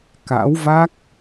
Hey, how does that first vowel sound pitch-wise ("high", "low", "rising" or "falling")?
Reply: rising